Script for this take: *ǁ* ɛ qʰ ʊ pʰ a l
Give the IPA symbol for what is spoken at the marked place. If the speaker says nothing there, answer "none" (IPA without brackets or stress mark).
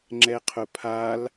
ŋ͡ǁ